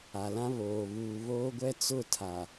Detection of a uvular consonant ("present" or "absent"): absent